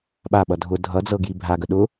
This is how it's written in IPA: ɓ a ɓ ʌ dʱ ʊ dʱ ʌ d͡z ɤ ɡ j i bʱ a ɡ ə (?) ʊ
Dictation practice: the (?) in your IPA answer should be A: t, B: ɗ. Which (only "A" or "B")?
B